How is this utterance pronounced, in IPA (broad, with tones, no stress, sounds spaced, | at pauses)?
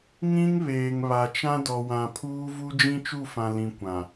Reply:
ŋ ĩ˦ ŋ β eː˨ ŋ β a˨ t͡ʃ ã˦ d ɔ˨ w ã˨ pʰ uː˦ v u˦ d͡ʒ ĩ˦ t͡ʃ u˦˨ f ã˨ l ĩ˨ kʷ ã˨